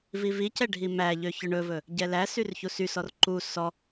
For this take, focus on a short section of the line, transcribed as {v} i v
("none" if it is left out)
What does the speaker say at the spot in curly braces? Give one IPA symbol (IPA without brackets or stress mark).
v